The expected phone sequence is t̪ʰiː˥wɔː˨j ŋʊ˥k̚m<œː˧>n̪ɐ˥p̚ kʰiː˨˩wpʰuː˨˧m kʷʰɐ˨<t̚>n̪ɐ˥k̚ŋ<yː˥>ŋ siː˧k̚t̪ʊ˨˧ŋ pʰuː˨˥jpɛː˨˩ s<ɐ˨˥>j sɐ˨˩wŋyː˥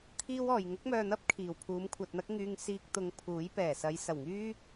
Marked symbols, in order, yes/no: yes, yes, no, no

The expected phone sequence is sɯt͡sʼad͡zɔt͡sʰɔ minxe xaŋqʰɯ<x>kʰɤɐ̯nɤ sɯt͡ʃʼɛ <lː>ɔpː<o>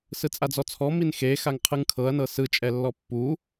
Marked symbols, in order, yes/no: no, yes, no

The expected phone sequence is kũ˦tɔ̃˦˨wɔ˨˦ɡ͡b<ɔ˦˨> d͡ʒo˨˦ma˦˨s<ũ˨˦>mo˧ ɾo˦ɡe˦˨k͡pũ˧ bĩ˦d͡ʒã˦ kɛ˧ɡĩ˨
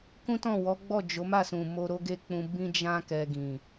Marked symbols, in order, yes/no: yes, no

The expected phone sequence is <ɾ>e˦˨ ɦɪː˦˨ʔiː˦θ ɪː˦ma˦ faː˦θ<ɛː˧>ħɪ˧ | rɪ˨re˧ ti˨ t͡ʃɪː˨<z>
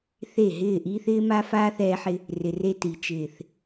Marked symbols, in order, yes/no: no, yes, no

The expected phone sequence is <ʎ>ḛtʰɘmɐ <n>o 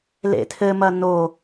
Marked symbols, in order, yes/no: no, yes

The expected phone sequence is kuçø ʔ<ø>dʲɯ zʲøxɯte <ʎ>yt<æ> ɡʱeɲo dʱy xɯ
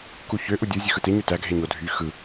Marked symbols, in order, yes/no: no, no, yes

